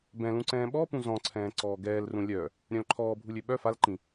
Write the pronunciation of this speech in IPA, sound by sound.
b ɛ̃ l ũ ǀ ɛ̃ː ɓ ɔ p ũ z ɔ̃ ǀʰ ɛ̃ː ǀ ɔː ɡ ɛː l r ũ lʲ œ | ɾʲ œ̃ l ǃʰ ɔː bʱ u lʲ ø ɓ œ f a l ǃ ĩ

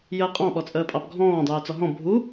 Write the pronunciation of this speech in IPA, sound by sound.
j əː qʼ ɑ̃ ɓ ɔ t͡sʼ əː pʼ ɑ p ɡʱ ɔ̃ː dˤ yː t͡s ɔ ɦ ɔ̃ bʱ u

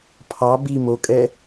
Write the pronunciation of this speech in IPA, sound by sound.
pʰ ɑ b i m o kʼ ɛ

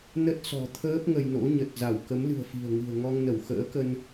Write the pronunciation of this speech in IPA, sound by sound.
n ə˦˥ t̚ s ɔ̤˨˩ t̪ʰ əː˦˥ p̚ ŋ ə˧ j n o̰˧˥ ɲ ə˨˩ t̚ z a˧˩ w k ə˨˦ m l ɨ̤˨˩ ə̯ f i̤˨˩ ə̯ ŋ ɨ̤˨˩ ə̯ ŋ ɔ˧ ŋ n ə˧˩ w x ə̰ː˧˥ k ə˧ n

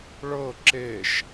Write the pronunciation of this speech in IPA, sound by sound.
ɭ ɤ ǁ e ʃ

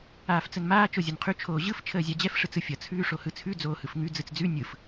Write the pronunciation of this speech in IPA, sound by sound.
aː f t͡s ə n m aː t͡ʃ o zʲ ʌ n qʰ ʉ t͡ʃʰ oː ʑ ɯ f t͡ʃʰ əː zʲ a d͡ʑ ɛ f ʂ ɯ t͡s ɯ fʲ ʌ t͡sʰ ʉː ʂ o h ɯ t͡sʰ ʉ d͡z oː h ɯ f ŋ ʉ d͡z ɯ t͡s d͡z ʉ nʲ ɯ f

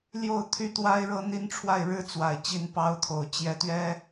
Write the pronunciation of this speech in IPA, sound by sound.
l j o˥˨ ʊ̯ t̪ʰ y˥˨ t̪ w a˦ ɪ̯ ɻ ɤ˦ n̪ i˦ n ʈ͡ʂʰ w a˥˨ ɪ̯ ɻ ɻ̩˦ t͡s w a˨˩ ɪ̯ t͡ɕ i˨˦ n p ɑ˨˦ ʊ̯ t̪ʰ o˨˩ ʊ̯ t͡ɕ j ɛ˨˦ t̪ ɥ ɛ˦

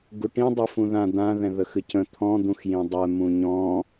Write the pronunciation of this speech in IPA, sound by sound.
ɡ u ʈ ĩ dˤ ʉ f ũ ð ã d̪ ã ð ɛ̃ ð ə x ɨ c ə̃ t̪ʰ ɔ̃ d̪ ũ x j ĩ dˤ ɛ m ũ ɲ ɔ̃

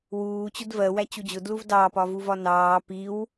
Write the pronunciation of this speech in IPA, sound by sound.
w uː t͡ɕ ʊ d v ɜ w æ t͡ɕ u d͡ʑ ʊ d l u v d ɑː p ɒ v u v ɒ n ɑː p i w

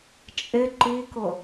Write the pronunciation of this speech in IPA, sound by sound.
t͡ʃʼ ɪ ǃ i k ʊ

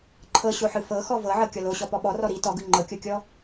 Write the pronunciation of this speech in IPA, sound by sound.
ǃʰ ɤ ɕ o ħ ɯ f ɤ x ɔ v ɤ ʕ ɤ kʲ ɔ l o ɕ ɔ p ɔ ɓ ɔ r ɔ ɾ i t ɔ ɡ ɯ ŋ͡ǃ ɤ kʲ o kʲ ɔ

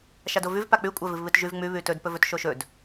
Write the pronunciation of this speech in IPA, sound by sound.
ʃ a d o v ʉ v p a k͡p ʉ kʷʼ a v ɨ v β ɨ t ʒ ʉ v ŋ͡m ʉ β ʉ t ɵ d p ɵ v ɵ t ʃ o ʃ ɵ d

